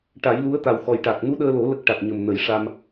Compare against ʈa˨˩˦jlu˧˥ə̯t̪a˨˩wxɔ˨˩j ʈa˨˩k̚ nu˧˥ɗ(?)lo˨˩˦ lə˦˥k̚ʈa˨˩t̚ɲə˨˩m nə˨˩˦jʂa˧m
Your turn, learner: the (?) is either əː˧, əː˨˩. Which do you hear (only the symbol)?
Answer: əː˧